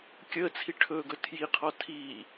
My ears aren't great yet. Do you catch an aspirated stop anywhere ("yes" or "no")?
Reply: yes